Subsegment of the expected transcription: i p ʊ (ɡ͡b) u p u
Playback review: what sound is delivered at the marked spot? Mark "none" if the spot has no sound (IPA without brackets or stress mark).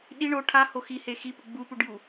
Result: ɡ͡b